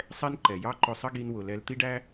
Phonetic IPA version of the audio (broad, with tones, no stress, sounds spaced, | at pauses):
sˤ ɛ˦ n ǃ ɛ˨ j ɑ˦ ǃ ʊ˧ sˤ ə˦ ɡ i˧ n w ʊ˨ l ɛ˧ l t̪ i˦ ɖ æ˦